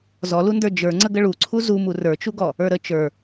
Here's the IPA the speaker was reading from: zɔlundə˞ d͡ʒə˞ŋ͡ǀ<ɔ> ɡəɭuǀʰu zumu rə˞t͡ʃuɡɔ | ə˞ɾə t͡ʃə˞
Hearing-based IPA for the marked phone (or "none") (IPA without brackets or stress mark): ə